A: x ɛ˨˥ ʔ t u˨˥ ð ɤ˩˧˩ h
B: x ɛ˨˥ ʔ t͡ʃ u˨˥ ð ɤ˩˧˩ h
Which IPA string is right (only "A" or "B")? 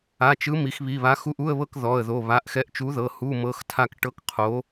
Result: B